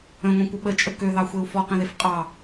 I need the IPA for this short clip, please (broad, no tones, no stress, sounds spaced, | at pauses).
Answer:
ə̃ ŋʷ ẽ kʷ ə ɓ ə t͡ʃʼ ə k ø ð ɑ xʷ e u̯ f ɔ q ẽ ð e f qʼ ɑ